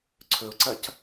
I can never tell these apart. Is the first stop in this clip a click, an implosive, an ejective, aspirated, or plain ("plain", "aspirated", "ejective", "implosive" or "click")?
click